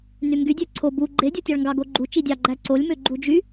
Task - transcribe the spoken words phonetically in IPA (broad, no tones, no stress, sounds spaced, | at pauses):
n y ŋ ɡ y dʲ ø ǀʰ o b u ɡ͡ǃ e dʲ o tʲ ɑ ɭ ŋ ɡ ɑ ɡ o ɡ͡ǃ u t͡ʃ i dʲ ɑ ɡ͡ǃ æ ǀ o lʲ m ø ɡ͡ǃ u d͡ʒ y